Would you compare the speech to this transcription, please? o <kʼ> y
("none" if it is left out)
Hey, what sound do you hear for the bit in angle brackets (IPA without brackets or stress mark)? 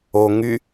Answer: ŋ